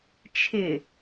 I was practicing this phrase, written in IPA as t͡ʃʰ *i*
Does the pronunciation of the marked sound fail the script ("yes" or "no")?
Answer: yes